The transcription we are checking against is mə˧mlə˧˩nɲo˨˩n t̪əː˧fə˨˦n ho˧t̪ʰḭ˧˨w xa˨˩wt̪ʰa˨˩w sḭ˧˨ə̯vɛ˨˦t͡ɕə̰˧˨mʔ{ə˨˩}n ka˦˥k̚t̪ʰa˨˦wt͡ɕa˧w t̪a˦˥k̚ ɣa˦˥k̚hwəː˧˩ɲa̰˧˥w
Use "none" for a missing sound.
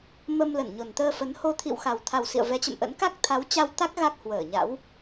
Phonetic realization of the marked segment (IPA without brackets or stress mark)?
ə̰˧˥